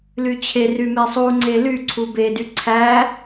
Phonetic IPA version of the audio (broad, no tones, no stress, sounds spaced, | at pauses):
l y t͡ɕʰ e r y m e sˤ u ŋ͡ǀ e l y ǀʰ u b e d y ǀʰ æ